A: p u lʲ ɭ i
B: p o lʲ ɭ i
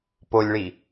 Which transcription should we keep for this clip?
B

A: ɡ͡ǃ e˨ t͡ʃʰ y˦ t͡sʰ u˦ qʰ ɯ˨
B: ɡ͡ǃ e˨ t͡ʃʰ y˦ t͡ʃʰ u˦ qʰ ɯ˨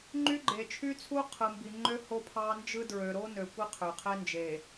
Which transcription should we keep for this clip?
A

